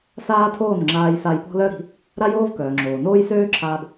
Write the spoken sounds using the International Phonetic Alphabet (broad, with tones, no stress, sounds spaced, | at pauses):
s aː˦ tʰ oː˦˨ n ŋ͡ǁ aː˧ j s a˧ j p ɔ̤˦ l œ˦ ɾ i̤˨˦ | ɾ a˦ j oː˦ v k œː˨ ŋ͡ǁ oː˨ n oː˦ j s øː˦ ǁʰ aː˧ b